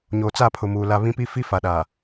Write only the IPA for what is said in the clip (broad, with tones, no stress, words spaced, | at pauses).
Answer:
ɲoː˨t͡sa˦˨pʰʊ˨muː˨ la˦ βĩ˦pi˦ fi˦fa˨ɗa˨